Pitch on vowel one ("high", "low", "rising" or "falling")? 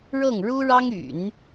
falling